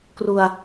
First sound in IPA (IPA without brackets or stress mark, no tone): k